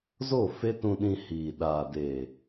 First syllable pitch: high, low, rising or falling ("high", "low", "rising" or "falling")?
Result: falling